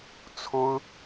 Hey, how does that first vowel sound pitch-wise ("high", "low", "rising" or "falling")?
high